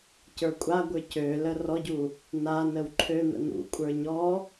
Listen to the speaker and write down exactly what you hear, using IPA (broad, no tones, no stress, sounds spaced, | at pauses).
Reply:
c ə˞ kʷʼ a ɡʷ ə˞ c ø l ə r ɔ ɟ u | n a n ə w ǃʰ ø n̪ ə̰ n ṵ kʷʼ ə˞ ɲ ɔ